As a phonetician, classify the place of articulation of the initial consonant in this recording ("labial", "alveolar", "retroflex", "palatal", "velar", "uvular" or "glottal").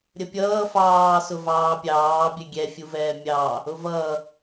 alveolar